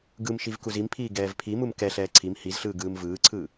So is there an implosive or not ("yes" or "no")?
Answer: no